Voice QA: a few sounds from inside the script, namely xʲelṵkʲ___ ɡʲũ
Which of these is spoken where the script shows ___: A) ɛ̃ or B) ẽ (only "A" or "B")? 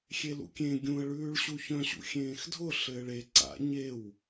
B